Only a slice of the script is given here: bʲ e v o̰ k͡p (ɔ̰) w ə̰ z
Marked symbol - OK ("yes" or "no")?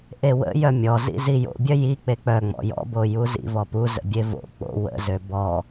no